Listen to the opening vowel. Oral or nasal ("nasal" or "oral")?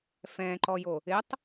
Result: nasal